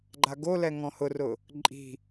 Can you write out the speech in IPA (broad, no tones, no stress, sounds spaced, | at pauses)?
ɡ͡ǃ a ɡ o l ɛ ŋ ɔ̃ h ʊ r ʊ | ǃʼ i̤